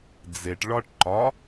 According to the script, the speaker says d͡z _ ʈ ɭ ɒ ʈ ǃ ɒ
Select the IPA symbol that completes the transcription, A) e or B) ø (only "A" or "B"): A